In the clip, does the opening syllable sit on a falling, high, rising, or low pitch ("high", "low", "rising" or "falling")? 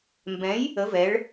rising